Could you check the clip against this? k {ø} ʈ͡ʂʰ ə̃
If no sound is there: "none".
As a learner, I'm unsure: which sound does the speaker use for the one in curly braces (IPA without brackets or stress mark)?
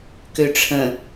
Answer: ø